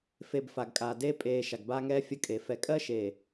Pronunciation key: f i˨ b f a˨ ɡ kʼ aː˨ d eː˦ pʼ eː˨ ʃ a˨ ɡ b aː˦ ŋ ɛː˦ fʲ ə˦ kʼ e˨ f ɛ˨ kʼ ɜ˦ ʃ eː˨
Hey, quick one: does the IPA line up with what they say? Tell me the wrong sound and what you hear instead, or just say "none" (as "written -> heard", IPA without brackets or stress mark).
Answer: i˨ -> e˨